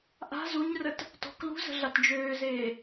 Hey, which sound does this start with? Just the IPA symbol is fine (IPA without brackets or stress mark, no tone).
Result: ʔ